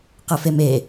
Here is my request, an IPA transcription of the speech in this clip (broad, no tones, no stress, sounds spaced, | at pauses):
q ɘ f e m e